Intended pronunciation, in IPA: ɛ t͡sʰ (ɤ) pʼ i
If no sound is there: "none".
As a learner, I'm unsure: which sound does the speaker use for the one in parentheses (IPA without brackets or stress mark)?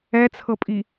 ɤ